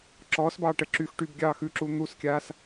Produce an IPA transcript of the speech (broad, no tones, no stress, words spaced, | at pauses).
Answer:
ǁɔːsbɑː ʈə ǁyx ʈybɡʲɑː xʉǁuː n̪uskʲaːs